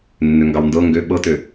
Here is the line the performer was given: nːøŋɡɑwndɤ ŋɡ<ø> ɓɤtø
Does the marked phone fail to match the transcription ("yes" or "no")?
no